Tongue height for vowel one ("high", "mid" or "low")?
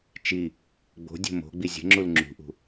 high